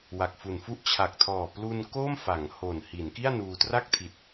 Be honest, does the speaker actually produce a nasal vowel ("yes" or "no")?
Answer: no